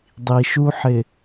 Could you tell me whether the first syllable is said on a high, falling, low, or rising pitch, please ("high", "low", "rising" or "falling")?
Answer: low